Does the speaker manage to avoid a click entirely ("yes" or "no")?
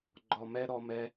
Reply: no